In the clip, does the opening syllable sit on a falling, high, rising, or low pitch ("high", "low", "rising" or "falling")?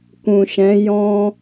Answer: low